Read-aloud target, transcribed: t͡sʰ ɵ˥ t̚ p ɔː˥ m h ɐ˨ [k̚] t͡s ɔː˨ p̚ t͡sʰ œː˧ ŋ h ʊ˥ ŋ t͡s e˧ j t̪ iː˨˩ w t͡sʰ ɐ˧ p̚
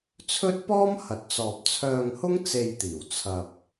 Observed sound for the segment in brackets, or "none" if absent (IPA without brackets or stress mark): t̚